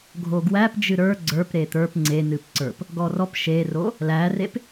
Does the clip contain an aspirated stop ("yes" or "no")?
no